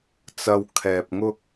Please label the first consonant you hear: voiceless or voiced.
voiceless